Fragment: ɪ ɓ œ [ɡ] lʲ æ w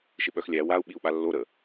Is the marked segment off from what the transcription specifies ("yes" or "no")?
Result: yes